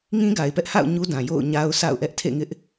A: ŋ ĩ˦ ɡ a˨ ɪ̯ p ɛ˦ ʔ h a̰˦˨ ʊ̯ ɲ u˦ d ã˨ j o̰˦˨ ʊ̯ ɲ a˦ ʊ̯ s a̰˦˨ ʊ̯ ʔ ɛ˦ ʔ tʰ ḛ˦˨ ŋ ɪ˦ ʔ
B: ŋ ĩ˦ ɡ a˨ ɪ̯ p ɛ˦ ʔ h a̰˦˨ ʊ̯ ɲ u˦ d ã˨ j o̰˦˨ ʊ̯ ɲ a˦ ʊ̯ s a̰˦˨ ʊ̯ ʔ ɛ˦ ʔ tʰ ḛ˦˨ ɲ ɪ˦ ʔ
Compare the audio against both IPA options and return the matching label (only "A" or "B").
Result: A